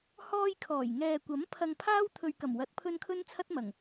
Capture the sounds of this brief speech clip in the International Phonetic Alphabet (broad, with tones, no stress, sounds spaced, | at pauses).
h ɔː˧ j kʰ ɔː˨˩ j ŋ ɛː˨ kʷ ɐ˨˥ m pʰ ɐ˧ ŋ pʰ aː˥ w t̪ʰ ɵ˨ ɥ k ɐ˨˩ m w ɐ˨˥ t̚ pʰ ɵ˧ n kʰ ɵ˥ n t͡sʰ ɐ˥ t̚ m ɐ˨˩ ŋ